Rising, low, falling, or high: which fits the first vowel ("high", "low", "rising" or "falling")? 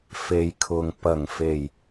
low